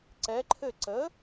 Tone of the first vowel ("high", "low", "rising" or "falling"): rising